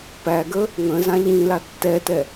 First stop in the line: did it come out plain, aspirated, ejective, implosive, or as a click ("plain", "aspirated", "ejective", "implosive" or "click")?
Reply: plain